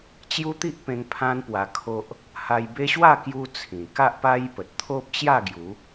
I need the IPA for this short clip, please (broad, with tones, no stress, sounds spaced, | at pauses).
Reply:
t͡ɕ j u˦ t̪ i˦ ʔ p ẽ˧ ŋ pʰ ã˦ n p w a˧ kʰ o˦ ʔ | h a˧ j b e˦ ɕ w a˥˧ k j u˦ t͡sʰ ĩ˨˩ k a˦ ʔ p a˦ j p ə˨ t̚ t̪ʰ o˦ p̚ t͡ɕ j a˥˧ ɡ j u˨˦